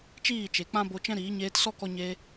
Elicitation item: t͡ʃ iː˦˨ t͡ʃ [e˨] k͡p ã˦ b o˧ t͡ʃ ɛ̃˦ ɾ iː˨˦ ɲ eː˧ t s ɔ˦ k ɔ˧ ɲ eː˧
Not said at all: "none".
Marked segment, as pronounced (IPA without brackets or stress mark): e˨